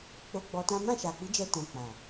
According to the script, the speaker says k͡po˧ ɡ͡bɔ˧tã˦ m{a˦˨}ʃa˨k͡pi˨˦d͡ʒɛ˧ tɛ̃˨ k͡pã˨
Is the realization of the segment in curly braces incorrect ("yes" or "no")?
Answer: yes